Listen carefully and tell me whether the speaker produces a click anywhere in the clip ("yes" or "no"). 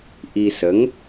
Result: no